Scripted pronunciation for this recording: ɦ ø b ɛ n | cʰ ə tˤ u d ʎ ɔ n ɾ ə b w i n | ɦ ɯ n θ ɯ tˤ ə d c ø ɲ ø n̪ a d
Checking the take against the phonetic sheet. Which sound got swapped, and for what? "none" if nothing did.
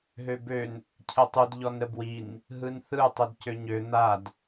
ɛ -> ø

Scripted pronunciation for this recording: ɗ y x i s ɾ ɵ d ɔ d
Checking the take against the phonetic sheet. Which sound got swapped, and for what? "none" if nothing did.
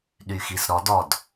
ɵ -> ɔ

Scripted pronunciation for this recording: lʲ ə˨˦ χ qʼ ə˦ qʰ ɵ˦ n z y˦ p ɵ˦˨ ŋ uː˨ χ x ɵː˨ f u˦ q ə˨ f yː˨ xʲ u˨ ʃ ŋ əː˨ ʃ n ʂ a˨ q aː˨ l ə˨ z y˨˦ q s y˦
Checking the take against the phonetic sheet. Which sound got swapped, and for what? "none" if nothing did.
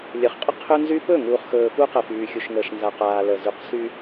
ʂ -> z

